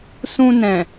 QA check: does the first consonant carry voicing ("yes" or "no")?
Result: no